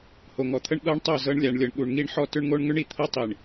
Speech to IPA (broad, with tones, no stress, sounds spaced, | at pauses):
h o˨ ŋ ɔ˨ t̪ʰ ə˦ ɳ ɠ ɤ˦ ɳ tˤ o˦˨ z ɤ˦ ɳ lʲ a˨ ɳ lʲ ɤ˨ ɳ ɠ u˨ ɳ ŋ i˦ ɳ ħ ɔ˦ t ʏ˦ ɳ ŋ o˦ ɳ ŋ ʏ˦ ɳ i˨ t̪ʰ ɤ˦ tˤ i˨ ɳ